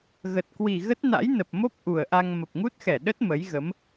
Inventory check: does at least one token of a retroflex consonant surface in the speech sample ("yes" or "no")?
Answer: no